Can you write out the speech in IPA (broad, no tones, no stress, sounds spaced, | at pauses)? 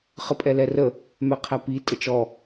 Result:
χ ə pʼ ɛ l ɛ r ə | m ɛ qʰ æ p i tʼ ə t͡ʃ ɔ